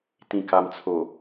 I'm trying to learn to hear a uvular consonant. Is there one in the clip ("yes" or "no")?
no